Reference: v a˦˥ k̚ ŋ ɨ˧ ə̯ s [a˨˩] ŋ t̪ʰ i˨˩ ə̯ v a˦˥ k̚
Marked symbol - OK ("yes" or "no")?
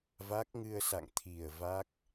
no